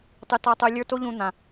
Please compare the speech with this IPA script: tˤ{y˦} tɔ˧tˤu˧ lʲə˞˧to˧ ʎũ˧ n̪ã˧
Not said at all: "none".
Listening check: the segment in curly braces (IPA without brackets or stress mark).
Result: y˦